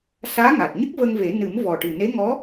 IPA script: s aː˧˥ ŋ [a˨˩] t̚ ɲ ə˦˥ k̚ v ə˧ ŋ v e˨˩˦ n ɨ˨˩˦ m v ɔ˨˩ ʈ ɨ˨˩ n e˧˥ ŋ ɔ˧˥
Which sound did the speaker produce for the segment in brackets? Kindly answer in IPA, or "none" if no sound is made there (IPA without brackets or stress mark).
a˨˩